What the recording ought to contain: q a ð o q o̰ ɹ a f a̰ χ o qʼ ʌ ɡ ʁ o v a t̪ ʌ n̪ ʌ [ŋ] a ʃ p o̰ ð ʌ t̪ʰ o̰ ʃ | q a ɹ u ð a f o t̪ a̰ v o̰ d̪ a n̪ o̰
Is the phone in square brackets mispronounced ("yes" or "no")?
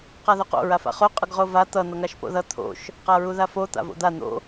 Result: no